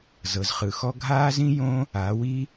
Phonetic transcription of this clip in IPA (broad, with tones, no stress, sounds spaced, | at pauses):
z ɤ˩ z χ ɯ˩ x ɔ˥ ɡʱ aː˥ z ĩ˥ j õ˥ | a˩˧ w i˥